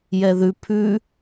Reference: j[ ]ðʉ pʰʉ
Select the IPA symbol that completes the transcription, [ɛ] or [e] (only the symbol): ɛ